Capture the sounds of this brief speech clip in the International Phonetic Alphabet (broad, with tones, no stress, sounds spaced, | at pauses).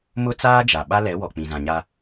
m ʊ˦ t͡s aː˦ d͡ʒ a˨ ɓ a˦ l ɛ˨˦ w ɔ˨ k͡p ĩ˨ z ã˨ ɲ a˦